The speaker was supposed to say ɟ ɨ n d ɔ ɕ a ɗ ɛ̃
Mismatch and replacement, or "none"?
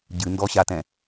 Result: ɗ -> t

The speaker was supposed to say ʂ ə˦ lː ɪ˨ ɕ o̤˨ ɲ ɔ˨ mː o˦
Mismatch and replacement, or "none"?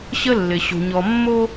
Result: ʂ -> ɕ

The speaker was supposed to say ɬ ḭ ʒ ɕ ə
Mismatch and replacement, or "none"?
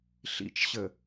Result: ʒ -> t͡ʃ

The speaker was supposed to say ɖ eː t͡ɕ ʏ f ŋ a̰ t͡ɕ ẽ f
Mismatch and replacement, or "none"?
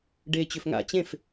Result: none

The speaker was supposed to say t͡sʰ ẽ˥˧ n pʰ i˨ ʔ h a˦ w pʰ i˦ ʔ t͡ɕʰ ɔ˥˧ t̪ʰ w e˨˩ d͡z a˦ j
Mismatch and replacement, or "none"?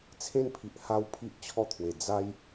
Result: none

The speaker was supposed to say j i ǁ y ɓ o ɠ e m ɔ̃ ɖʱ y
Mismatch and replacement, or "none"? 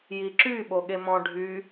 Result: none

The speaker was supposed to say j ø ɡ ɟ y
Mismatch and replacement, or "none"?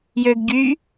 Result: none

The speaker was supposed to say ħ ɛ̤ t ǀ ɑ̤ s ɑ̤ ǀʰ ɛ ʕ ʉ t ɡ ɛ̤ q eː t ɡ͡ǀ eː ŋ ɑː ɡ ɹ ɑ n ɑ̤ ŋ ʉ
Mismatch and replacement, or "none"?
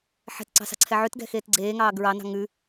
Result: q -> x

